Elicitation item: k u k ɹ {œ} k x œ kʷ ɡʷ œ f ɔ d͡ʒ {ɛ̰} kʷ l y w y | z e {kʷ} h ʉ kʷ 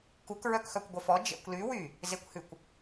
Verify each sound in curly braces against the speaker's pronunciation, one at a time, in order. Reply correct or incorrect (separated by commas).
correct, correct, correct